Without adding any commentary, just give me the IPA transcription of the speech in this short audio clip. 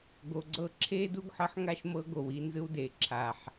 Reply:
ɡ o˨ ɡ͡ǀ ɤ˦ ǁʰ eː˦ d u˦ ɡ ħ ɤ˦ ħ ŋ a˦ ʃ m ɤ˦ ɡ o˨ w i˦ n z ɯ˦ w d eː˨ ǁʰ a˨ ħ

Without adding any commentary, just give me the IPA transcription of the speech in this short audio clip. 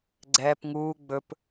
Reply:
ɡ͡ǀ ɛː p ŋ uː ɡ͡b ɵ p

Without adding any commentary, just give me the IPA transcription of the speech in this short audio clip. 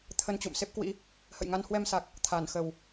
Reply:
t̪ʰ ə˧ n t͡ɕ ṵ˧˨ m s e˦˥ p̚ k w ḭ˧˥ | h ə̰˧˨ j ŋ a˧ n h w ɛ˧ m s a˨˩ k̚ | t̪ʰ aː˧˩ n x ə˨˩ w

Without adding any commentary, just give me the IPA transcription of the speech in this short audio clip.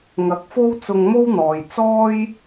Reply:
ŋ ɐ˨˥ k̚ f o˥ w t͡s ʊ˧ ŋ m o˥ w n̪ ɔː˨ j t͡s ɔː˥ j

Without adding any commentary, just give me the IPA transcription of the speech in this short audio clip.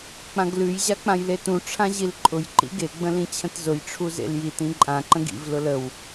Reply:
k͡p ã ɡ l ʉ j ʑ a k͡p ã j l e t ũ ʈ͡ʂʰ ã ʑ i l ǃʼ ʊ j ǃ ḭ ɡ e ɡ͡b ə̃ l ĩ t͡ɕʰ ə̃ t z ʊ j ʈ͡ʂʰ u z ḛ l j i t ĩ ǃʼ ã ǃ ə̃ ɡ ḭ v l ʊ l ə w

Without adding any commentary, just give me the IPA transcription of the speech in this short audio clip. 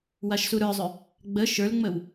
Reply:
w a ʃ s u ɾ ə˞ zˤ ʏ | ɡ͡b ə ʃ ə˞ l ŋ͡m ə w

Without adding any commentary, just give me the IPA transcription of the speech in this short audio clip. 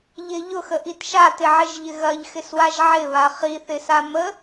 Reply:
ʎ ɪ ʎ ʊ x ə ʔ i t ʃ a t ɪ ʕ ɪ ʒ ʎ ɪ ɣ ɐ ʎ x ɪ s w a ʒ ʕ ɪ β a χ i θ ɪ s a m ə

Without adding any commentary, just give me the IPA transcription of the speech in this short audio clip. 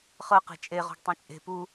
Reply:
χ ɤ q e̤ t͡ʃʼ e ʁ ɔ̤ ɡ tˤ ĩ t͡ʃʼ e̤ p u

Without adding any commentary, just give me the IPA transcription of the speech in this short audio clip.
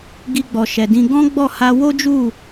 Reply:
ɡ i˧ ɡ͡b ɔ˨ ʃ ɛ˨ d ĩ˧ ɡ ɔ̃˦ ɡ͡b ɔ˦˨ h a˧ w o˦ d͡ʒ u˦˨

